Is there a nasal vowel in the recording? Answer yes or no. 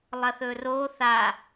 no